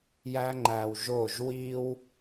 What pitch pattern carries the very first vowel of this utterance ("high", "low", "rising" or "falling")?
high